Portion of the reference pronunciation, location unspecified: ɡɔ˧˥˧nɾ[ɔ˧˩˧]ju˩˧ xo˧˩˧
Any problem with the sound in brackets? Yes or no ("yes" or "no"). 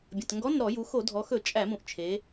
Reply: no